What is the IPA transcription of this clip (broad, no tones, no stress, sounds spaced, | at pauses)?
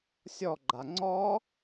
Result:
sʲ ɔ ɡ͡ǃ a ŋ͡ǀ ɔ